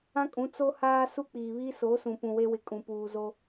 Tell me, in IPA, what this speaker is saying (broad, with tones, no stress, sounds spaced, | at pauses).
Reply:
ã˦ kʼ ũ˨˦ t͡s o˦ h aː˦ s u˦ k͡p iː˨ β iː˦ s o˨˦ s ũ˨ p ũ˨ w e˦ w ɪ˨ kʼ ũ˨ p uː˨ z o˦